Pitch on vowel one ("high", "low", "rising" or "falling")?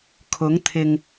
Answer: rising